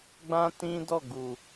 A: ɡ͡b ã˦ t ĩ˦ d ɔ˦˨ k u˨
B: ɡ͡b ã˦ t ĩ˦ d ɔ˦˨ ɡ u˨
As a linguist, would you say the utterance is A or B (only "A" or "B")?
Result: B